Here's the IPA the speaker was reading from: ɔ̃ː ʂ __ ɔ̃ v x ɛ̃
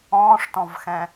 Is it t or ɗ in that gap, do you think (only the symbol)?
t